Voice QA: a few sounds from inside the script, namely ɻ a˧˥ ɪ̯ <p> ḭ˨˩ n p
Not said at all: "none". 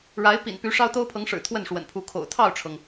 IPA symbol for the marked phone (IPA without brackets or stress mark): p